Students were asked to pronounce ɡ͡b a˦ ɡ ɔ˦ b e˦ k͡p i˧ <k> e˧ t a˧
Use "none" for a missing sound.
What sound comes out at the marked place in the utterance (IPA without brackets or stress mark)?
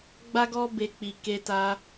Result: k